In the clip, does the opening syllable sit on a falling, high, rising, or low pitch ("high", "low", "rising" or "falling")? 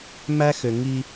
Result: high